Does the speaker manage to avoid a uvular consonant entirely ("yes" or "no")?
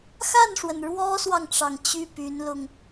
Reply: yes